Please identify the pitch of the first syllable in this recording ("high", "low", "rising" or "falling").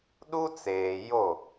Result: high